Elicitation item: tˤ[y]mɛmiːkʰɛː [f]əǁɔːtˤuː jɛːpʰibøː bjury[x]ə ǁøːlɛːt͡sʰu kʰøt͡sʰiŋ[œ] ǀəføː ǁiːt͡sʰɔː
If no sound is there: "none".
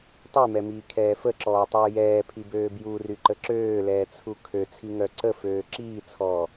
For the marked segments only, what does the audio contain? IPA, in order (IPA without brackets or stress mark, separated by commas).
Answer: y, f, ǃ, œ